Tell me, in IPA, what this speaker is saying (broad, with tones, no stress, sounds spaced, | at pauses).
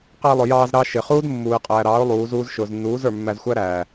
q æ˧ lˠ ʊ˨ j ɑː˧ z ɾ ɑ˧ ʃ ɪ˨ χ uː˦ d mː uː˨ ɪ̯ qʼ æː˨ ɾ ɑː˨˦ ʊ̯ lˠ uː˨˦ z uː˦ z ʃ ʊː˨ z nː uː˨˦ z ə˞˨ mː æ˧ z xʷ æ˦ ɾ æː˨